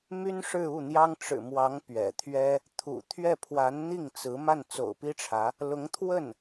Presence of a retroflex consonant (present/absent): present